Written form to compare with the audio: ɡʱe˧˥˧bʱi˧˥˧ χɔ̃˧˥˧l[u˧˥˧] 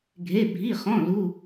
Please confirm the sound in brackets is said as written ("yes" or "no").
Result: yes